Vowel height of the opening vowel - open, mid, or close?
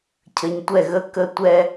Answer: mid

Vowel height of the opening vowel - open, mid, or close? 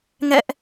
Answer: mid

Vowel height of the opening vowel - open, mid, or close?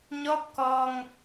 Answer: mid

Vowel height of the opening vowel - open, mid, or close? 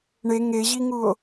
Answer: mid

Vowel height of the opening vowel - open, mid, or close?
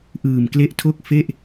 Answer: close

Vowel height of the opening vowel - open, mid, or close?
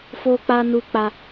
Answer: mid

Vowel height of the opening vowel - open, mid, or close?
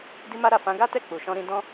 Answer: close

